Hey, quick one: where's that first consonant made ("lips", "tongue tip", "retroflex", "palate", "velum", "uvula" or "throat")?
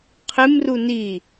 uvula